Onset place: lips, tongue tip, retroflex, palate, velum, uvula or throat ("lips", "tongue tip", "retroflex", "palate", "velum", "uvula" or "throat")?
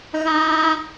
velum